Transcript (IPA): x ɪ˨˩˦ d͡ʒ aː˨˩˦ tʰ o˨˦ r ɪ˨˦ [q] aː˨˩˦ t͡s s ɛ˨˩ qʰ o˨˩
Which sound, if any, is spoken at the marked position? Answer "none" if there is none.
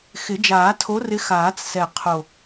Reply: x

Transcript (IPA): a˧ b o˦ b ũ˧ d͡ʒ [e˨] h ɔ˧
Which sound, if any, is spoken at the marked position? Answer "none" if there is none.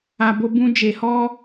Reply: e˨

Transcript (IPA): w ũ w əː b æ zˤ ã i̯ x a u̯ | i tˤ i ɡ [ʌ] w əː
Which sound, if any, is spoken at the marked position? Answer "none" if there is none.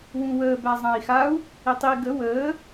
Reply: ə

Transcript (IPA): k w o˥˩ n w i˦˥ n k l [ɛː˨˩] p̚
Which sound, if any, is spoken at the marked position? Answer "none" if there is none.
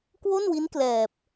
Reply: ɛː˨˩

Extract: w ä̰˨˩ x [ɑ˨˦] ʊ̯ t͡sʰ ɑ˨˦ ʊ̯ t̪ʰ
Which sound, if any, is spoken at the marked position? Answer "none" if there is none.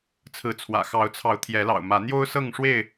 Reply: ɑ˨˦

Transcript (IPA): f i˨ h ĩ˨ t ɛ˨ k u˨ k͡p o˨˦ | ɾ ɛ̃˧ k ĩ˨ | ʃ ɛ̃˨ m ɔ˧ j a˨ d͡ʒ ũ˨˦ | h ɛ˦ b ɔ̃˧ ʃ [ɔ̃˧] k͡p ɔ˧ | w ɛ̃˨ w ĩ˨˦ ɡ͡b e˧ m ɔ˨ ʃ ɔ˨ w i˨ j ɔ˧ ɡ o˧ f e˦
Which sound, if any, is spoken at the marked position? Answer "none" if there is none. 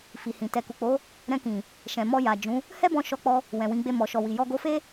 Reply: ɔ˧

